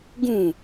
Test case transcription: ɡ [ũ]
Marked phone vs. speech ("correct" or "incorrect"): correct